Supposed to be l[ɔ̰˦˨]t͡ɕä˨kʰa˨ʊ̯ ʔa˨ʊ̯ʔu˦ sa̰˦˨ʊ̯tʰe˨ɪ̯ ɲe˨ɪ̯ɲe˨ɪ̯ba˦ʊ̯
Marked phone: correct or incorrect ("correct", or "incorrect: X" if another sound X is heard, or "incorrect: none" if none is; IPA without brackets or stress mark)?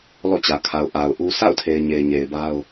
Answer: correct